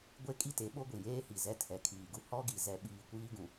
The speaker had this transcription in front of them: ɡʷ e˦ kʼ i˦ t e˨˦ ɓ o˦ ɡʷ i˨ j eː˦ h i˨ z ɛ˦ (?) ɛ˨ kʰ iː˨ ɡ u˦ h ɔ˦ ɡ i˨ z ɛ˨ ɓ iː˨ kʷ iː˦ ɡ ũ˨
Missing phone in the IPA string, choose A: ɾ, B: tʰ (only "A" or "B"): B